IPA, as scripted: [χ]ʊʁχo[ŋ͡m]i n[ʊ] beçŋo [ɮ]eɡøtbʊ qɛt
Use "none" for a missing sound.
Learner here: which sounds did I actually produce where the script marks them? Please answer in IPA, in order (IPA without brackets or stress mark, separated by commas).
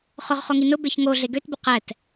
χ, ŋ, ʊ, ɮ